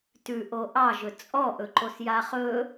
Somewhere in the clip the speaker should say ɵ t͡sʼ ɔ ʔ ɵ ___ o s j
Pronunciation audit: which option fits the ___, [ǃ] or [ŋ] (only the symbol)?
ǃ